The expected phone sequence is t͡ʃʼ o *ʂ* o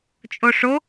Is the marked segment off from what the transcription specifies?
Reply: no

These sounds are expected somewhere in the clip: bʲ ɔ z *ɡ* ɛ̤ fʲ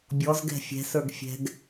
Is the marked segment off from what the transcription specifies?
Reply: no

